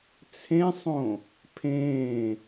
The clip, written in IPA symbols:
t͡sʰẽsˤõ | pʰẽː

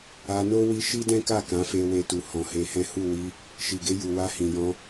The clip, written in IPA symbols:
a˧no˦ wi˦ ʃi˦dɛ̃˦ka˦˨ kã˨˦fe˧we˧tu˨ hɔ̃˨he˧hɛ̃˦ hu˦˨ wi˧ | ʃi˨ɡe˧ju˨ wa˧hĩ˨jɔ̃˧

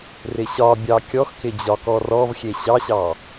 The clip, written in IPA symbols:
rɪɕɒbʲɑ kʲɔxkɪ d͡ʑɒkɔrɔvxʲe ɕɑɕɑ

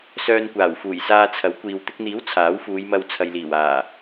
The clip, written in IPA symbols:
sœː˧nkʷaː˨˩wfuː˨˩jsaː˧ t͡sʰɐ˨˥wkʷiː˨w t̪ɪ˧k̚n̪iː˨˥w t͡sʰaː˨˥wfuː˨˧jmɐ˧w t͡sʰɐ˨jliː˨˩w aː˨˩

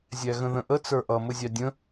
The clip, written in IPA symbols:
zʲæɣə̃ðə̃ʔə t͡sə˞ʔʌ mʊzʲɑdʲə̃

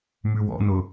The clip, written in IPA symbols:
mʉwɔ̰nʊ

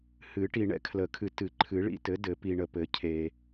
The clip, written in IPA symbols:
hɨ˨˩˦ʈi˨ ɳɛ̰˦kʰlə˨˩˦kʰɨ˨ tɨ˨˩˦ǃʰɨ˨˩˦ ɭḭ˦tɘ˩˥dɘ˨˩˦pi˨ ɳə˨pɘ˨˩˦ cʰe˨

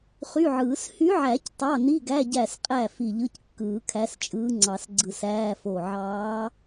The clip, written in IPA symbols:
χy˧˥˧ʕɯː˨˩˦s hy˧˥ʕæ˨˩˦c tˤɑ˧˥˧ ni˧˥˧ɡæ˧˥˧ ɟæ˧˩sqʼæ˧˩ fi˧˩ʎɯ˧˥˧c kːɯː˨˩˦kʰæ˧˥st͡ʃʼɯː˧˥ŋ͡ǀɑ˨˩˦s ɡ͡ǀɯ˧˩sæː˧˥˧fo˧˩ ʕɑː˧˥

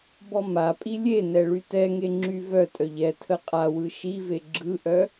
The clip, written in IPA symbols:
bɔmapʼi lʲenɛ ɭytɛŋe ŋ͡ǁyvœtʼœʎ ɛ tʰəqʼawɯ ʃive ɡ͡ǁɯʔœ

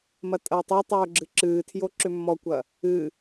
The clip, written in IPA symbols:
mɐtʼɐːtˤɐtˤoː ɡ͡ǁɨǁɨːtʰjo ǁʏmːɔkʷɐ | ɨ

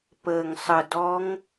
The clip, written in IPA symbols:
pəː˨˩ŋsˤə˨˩dɔ˧˥ŋ

